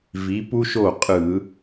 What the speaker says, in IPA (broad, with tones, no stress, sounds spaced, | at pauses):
v i˨˥ p u˥ ʃ o˥˩ qʼ ɯ˧˩˧